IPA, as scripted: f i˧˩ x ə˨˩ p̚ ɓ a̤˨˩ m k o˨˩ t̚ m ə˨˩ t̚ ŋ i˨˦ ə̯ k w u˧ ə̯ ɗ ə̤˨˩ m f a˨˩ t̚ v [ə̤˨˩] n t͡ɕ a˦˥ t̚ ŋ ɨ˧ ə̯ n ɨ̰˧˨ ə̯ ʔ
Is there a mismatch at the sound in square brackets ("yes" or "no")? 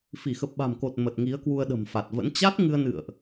yes